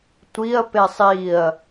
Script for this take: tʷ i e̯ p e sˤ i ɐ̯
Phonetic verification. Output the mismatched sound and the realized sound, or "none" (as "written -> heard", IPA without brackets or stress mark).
e̯ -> ɐ̯